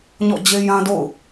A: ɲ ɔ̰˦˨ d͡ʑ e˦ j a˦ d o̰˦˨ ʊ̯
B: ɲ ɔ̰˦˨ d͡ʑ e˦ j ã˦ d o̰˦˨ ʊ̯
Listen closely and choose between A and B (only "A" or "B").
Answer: B